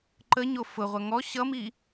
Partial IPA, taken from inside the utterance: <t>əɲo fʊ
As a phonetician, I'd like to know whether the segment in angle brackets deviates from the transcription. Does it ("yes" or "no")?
yes